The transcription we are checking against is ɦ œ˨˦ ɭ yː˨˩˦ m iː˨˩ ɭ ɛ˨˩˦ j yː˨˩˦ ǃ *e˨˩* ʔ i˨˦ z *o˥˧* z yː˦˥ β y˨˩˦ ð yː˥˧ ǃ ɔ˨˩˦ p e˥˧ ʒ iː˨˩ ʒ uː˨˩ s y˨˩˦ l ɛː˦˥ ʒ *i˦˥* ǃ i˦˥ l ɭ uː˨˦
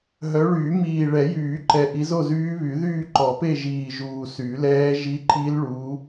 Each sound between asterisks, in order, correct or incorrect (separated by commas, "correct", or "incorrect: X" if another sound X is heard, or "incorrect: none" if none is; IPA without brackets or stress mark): incorrect: ɛ˨˩, correct, correct